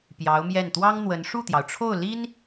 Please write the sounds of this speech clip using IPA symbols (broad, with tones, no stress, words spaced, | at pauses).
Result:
pjɑ˧˥ʊ̯mjɛ˥˩n t̪wɑ˥ŋn̪wə˧˥n ʂu˥˩t̪jɑ˩ʊ̯ʈ͡ʂʰo˥˩ʊ̯ li˥n